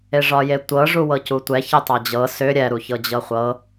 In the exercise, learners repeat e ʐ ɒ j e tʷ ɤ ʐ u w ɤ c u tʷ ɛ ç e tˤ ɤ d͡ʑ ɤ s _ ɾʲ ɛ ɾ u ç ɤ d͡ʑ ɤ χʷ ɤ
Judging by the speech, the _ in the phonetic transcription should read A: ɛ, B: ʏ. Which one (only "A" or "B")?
B